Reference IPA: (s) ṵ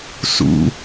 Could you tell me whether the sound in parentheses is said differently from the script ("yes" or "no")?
no